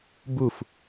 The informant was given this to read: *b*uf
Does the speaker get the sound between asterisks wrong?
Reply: no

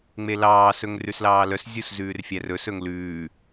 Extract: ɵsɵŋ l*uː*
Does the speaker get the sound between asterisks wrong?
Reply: yes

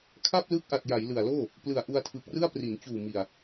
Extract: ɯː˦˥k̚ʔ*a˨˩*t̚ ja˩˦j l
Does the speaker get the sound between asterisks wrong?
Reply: no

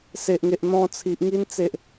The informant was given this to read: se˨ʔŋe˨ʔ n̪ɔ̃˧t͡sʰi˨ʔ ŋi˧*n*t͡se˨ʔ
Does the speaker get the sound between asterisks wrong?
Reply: no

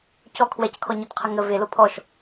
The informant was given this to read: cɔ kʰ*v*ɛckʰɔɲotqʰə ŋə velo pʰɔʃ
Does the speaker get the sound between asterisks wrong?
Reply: yes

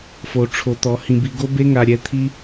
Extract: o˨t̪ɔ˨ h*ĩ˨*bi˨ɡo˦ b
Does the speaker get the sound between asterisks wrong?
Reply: no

